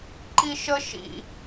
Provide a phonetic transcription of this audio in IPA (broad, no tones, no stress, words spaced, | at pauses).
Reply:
ǃiʃə ʃḭ